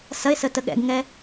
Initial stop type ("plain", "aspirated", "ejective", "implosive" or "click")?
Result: plain